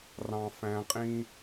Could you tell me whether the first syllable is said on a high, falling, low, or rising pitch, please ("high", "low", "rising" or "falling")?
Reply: low